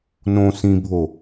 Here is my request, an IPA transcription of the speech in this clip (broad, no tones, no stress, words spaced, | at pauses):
nõ sĩbʱo